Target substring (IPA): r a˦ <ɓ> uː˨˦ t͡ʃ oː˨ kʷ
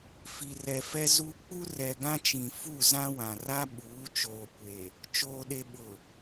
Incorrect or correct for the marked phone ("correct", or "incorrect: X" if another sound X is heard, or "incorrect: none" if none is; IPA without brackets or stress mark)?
correct